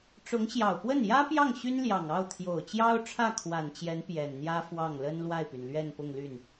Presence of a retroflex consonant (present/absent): present